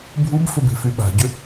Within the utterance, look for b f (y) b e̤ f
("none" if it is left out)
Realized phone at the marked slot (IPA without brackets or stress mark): ʏ